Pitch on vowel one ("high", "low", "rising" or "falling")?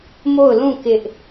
falling